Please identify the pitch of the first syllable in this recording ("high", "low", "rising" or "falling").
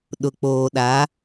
low